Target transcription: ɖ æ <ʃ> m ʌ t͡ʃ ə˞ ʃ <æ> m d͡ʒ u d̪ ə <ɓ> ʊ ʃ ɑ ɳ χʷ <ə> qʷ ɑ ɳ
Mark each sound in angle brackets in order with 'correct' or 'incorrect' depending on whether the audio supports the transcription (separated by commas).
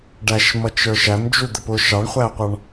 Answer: correct, correct, incorrect, incorrect